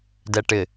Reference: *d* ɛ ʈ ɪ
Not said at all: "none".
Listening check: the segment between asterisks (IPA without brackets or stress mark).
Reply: d